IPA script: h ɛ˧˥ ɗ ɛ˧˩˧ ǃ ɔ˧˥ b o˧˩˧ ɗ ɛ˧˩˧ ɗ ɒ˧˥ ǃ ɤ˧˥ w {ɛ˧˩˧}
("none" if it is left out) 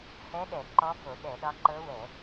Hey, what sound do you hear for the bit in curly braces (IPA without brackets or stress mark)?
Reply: ɛ˧˩˧